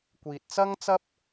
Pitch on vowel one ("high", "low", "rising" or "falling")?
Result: low